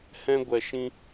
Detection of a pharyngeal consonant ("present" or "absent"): absent